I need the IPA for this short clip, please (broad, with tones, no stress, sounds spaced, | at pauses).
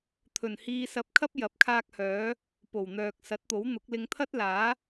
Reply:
t̪ʰ ɵ˨˩ n h iː˧ s ɐ˧ p̚ kʰ ɐ˥ p̚ j ɐ˨˥ p̚ kʰ aː˧ k̚ h œː˨˥ | p o˨˩ w n̪ œː˨ k̚ s ɐ˨˥ t̚ t̪ o˨˥ w n̪ ʊ˨˥ k̚ l ɪ˧ ŋ t̪ʰ ɐ˥ t̚ l aː˨˥